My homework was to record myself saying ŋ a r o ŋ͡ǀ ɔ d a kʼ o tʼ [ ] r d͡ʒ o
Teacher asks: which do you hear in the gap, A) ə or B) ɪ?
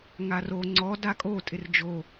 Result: B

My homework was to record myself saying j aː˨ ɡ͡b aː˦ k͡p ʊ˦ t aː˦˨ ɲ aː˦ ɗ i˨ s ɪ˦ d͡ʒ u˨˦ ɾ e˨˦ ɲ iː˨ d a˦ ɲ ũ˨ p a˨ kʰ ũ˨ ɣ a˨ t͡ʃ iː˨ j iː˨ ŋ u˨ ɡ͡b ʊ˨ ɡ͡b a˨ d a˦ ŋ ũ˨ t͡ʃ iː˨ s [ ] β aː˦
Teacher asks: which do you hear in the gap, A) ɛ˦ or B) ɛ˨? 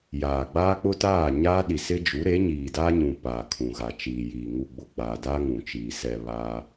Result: B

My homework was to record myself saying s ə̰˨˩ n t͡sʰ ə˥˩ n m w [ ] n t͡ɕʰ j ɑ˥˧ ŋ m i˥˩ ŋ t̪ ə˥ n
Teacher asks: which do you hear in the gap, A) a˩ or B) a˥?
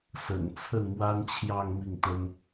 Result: B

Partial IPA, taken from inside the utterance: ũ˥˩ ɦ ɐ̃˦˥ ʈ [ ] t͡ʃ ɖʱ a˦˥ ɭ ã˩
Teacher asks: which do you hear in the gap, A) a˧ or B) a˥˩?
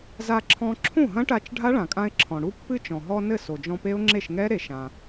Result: A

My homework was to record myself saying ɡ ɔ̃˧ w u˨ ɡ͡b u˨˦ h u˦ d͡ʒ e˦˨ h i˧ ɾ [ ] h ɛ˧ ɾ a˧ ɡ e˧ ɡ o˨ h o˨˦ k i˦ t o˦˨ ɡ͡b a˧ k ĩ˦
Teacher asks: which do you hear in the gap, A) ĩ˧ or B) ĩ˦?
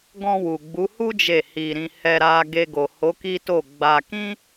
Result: A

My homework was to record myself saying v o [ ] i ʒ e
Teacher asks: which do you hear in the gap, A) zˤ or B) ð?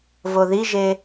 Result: B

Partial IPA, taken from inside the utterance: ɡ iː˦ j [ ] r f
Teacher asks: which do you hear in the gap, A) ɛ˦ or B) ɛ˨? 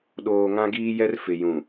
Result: A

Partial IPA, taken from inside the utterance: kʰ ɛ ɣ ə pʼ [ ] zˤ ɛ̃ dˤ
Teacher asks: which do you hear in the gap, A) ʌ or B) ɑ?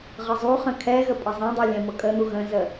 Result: A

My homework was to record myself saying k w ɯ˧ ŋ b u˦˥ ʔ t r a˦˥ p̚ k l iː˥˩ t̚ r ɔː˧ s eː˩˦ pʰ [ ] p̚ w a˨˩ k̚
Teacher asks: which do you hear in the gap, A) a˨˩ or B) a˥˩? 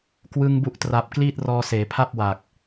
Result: B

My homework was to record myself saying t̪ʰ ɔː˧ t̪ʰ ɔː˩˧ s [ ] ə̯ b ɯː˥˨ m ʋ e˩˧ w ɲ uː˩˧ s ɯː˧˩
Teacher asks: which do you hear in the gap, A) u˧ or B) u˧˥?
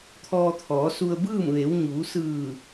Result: A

